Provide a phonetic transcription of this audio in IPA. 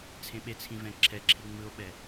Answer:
t͡sʰ ẽ ɓ e t͡sʰ ĩ v ɛ̃ ǁʰ ɛ ǁʰ i ŋ͡m ɯ o̯ ɓ ɛ

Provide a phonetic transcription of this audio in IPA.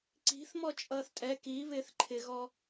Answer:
ǀ i̤ θ m ɔ t͡ʃʼ ʌː θ tʼ ɛ k i β ɪː θ ǃʰ ɪ ɣ ɔ

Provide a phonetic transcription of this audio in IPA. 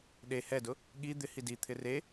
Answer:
ɗ e h ɛ d ʊ | ɠ i d̪ ɪ h i d i t̪ʰ ɪ r e

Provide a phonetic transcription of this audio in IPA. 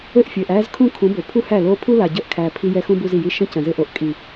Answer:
ɘ˦˨ ʔ fʲ ɘː˨ ʔ æː˦ z kʰ ũ˦ kʰ ũ˨˦ b o˨ pʰ u˦ h æ˦˨ l oː˦ pʰ u˦ l a˨ ɟ ə˦˨ ʔ kʰ æː˨ pʰ i˦ j ɛ˦ x ũ˦ b u˦ z i˨ j i˦ ʃ ə̃˦ c ə̃˨ z ɘ˦ ʔ o˨ ʔ kʼ i˨

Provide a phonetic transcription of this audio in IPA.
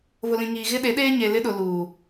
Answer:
β ʊ˨ l ĩ˨ ŋ iː˨ ɣ ɪ˦ ɗ e˨˦ ɗ eː˦ ɲ e˨ l ɪ˦ ɗ ʊ˨ l uː˨

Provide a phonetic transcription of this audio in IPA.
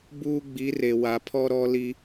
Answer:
b uː˦ ɡ͡b i˨˦ r e˨ w a˨ pʰ ɔ˦ ɾ ɔ˦ l i˦

